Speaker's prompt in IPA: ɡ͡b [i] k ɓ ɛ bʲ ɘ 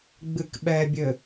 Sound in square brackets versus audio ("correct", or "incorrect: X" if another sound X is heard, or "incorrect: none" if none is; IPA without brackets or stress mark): incorrect: ɨ